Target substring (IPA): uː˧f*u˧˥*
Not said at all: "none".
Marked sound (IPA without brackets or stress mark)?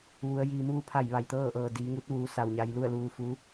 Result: u˧˥